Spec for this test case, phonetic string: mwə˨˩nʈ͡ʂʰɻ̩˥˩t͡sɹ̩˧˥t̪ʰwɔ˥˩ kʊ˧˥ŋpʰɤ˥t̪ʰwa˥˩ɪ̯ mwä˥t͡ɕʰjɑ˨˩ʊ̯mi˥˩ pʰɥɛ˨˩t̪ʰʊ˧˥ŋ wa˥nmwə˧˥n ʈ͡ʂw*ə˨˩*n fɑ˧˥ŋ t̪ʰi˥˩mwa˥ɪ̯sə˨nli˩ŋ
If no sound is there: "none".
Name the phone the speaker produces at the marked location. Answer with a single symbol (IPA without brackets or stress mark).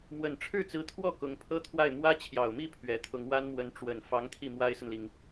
ə˨˩